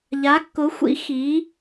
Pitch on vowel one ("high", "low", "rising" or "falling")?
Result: rising